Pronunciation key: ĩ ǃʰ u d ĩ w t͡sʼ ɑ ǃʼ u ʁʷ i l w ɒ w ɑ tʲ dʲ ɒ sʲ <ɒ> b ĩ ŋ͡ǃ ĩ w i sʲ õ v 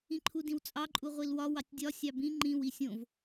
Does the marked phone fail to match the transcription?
yes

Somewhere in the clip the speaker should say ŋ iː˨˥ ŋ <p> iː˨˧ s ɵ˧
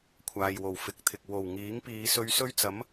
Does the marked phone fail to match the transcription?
no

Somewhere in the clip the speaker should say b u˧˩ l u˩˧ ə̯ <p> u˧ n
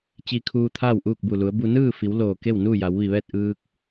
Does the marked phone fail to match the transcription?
yes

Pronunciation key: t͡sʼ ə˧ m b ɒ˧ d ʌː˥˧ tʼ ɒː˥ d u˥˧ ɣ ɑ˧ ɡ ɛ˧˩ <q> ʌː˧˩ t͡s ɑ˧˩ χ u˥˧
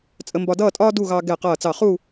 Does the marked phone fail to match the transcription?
no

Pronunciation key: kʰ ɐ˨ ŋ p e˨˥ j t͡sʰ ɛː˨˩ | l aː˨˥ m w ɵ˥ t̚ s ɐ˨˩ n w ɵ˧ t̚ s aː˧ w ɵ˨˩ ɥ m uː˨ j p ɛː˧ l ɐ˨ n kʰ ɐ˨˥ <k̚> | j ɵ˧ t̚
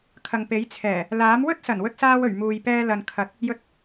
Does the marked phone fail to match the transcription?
yes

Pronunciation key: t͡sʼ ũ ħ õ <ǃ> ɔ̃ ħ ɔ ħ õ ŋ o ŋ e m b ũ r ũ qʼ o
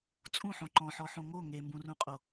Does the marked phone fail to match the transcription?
no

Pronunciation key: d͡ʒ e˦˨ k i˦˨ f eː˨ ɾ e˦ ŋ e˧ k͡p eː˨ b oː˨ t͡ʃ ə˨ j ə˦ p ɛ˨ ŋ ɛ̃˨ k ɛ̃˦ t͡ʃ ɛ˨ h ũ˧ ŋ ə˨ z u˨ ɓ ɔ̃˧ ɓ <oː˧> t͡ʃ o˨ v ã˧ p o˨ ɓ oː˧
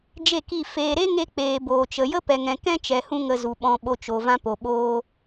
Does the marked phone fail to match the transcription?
yes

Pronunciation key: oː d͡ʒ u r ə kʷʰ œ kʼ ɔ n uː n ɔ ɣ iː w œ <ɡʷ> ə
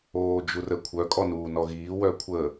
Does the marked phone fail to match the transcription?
yes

